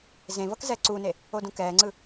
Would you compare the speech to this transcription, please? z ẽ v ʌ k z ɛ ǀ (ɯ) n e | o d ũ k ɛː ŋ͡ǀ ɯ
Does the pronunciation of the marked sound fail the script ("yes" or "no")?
yes